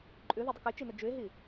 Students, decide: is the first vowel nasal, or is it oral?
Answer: oral